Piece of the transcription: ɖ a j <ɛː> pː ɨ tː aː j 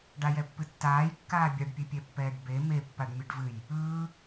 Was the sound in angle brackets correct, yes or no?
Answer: no